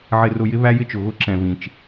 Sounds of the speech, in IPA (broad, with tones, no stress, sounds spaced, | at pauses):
ʕ ɪ˧ r ʊ˧ j ɪ˦ β æ˦ j ɪ˦ t͡ʃ ʊ˨ ɣ ʊ˦ ǁ ɛ̃˨ v ĩ˨ t͡ʃ